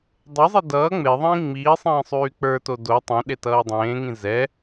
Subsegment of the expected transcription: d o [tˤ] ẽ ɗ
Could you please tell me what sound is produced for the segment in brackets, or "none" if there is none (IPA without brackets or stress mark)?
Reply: tˤ